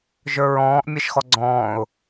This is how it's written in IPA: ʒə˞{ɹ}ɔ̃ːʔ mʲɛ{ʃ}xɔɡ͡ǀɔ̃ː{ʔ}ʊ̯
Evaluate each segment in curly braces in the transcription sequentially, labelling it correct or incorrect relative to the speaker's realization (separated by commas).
correct, correct, incorrect